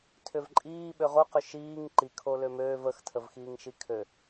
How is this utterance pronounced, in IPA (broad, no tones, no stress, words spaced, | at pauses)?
tʰʏvǃʼiː ɓøʁoqʏ ʃiːŋ ǃikʰo lømøːv əxtʰəvxiːŋ ʃikʰø